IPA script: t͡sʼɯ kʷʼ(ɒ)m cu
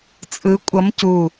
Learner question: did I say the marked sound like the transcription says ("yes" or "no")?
no